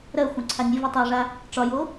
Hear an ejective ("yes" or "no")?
no